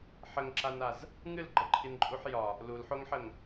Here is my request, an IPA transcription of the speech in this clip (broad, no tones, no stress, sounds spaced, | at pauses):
ħ ə ŋ ǁ a n a z | ŋ ɨ l ɡ͡ǃ ə ǃʰ i n ǃʼ u ħ j ɒ | l u l ħ o ŋ ħ ə ŋ